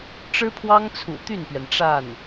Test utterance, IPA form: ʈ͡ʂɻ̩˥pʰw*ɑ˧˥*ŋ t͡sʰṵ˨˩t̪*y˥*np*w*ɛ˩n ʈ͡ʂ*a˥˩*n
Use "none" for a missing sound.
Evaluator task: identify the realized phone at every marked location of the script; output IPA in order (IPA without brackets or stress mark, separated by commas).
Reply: ɑ˥, y˥˩, ɥ, a˥˩